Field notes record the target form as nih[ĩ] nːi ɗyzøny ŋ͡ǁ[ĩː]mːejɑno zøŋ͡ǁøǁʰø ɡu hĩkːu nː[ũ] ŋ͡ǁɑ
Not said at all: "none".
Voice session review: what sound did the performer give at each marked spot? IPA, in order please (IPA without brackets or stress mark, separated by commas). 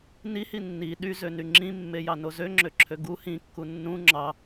i, ĩ, ũ